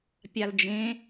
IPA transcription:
pʲald͡ʒẽ

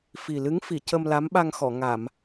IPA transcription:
fi˨˩ lɨ˧˥ŋfi˨˩˨ cə˧mla˧˥mɓa˧ŋxɔ˨˩˨ ŋa˨˩˨m

